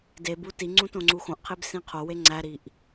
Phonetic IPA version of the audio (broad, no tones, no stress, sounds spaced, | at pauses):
d e b u t i ŋ͡ǀ ũ t õ ŋ͡ǀ u x õ ʔ qʰ e b s ĩ qʰ o w e ŋ͡ǀ æ ɾ i ʔ